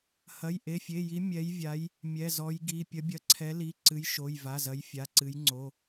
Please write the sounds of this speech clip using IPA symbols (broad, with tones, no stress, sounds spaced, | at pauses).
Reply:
h ɐ˩˧˩ j ʔ e˩˧˩ fʲ e˩˧˩ j i˨˦ mʲ ɛ˨˦ j vʲ a˨˦ j | mʲ ɛ˩˧˩ z ɔ˨˦ j ɡ i˩˧˩ pʲ ɐ˨˦ bʲ ɐ˨˦ ǀʰ ɛ˨˦ l i˩˧˩ ǀ ɨ˨˦ j ʃ o˩˧˩ j v a˩˧˩ z ɐ˨˦ j fʲ a˩˧˩ ǀ ɨ˨˦ j ŋ͡ǀ o˩˧˩